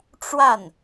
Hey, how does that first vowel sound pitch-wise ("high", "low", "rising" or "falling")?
falling